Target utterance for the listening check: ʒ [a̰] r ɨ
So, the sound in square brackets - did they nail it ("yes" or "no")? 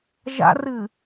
yes